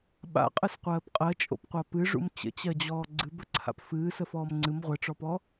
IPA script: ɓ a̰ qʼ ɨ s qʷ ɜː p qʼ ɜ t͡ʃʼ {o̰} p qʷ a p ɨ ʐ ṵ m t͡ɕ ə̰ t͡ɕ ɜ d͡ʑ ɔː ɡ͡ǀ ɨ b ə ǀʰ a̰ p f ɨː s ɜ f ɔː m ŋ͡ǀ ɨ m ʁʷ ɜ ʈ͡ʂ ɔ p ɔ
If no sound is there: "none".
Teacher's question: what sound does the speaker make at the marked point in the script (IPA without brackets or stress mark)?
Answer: o̰